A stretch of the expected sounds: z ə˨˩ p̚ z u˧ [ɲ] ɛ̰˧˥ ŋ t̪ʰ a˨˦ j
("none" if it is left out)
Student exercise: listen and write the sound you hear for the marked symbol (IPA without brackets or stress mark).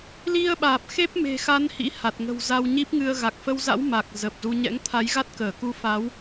ɲ